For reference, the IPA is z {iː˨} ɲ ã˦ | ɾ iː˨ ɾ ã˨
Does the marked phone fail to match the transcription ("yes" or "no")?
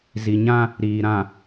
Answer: yes